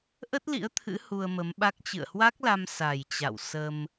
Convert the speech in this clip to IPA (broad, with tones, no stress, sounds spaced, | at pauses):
ʔ ə˦˥ t̚ l ḭ˧˥ ə̯ t̪ʰ ɨ̰˧˥ h u˧ ə̯ m ə˨˦ m ɓ a˦˥ k̚ t͡ɕ ɨ̰˧˨ ə̯ h w a˦˥ k̚ l a˧ m s a˨˩ j t͡ɕ a̰˧˨ w s ə˧ m